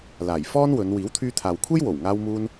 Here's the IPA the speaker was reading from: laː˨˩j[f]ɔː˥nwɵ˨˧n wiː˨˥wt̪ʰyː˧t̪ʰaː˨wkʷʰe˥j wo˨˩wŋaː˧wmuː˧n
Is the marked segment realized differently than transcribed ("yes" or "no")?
no